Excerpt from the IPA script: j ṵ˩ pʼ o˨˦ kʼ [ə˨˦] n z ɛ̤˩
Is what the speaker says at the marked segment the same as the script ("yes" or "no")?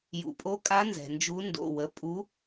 no